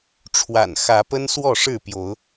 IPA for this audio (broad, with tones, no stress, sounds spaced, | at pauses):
ʈ͡ʂʰ w a̰˨˩ n x ä˨˦ p ə˦ n s w ɔ˥˨ ʂ ɻ̩˥˨ p j o˨˦ ʊ̯